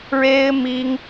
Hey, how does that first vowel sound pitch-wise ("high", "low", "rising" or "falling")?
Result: high